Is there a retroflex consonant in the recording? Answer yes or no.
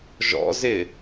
no